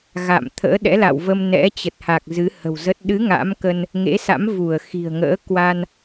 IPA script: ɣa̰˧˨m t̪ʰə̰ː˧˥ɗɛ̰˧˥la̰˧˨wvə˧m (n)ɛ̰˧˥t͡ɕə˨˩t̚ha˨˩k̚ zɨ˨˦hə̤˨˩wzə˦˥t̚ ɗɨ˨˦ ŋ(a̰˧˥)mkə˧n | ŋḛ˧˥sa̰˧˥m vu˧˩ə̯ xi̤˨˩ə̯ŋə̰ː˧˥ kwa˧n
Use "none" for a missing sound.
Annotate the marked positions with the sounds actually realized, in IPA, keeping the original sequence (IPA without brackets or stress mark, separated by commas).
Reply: n, a̰˧˥